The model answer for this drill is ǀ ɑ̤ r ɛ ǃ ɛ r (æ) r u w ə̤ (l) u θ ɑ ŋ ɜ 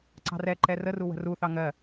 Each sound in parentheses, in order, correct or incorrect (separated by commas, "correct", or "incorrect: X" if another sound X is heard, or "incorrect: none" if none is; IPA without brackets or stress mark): incorrect: ə, incorrect: r